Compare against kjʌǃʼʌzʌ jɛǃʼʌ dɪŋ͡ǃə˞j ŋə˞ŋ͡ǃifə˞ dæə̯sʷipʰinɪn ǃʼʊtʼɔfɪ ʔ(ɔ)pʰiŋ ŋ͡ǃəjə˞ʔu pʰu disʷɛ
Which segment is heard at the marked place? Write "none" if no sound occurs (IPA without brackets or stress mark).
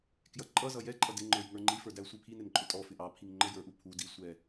ɑ